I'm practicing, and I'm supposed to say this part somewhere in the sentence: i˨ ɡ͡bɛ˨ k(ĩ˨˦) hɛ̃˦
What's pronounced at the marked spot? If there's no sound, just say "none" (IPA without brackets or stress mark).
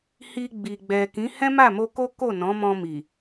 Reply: ĩ˨˦